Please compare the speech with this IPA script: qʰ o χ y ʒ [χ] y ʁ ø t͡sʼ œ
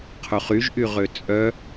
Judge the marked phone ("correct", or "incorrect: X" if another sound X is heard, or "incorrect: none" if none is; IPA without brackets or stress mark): incorrect: ʔ